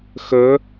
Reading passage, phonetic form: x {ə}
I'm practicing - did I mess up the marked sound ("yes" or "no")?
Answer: no